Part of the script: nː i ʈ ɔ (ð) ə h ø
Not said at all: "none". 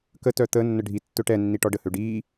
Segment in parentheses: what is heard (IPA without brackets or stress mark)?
ɖ